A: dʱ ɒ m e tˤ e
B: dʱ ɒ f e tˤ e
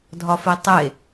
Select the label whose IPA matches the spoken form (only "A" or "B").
B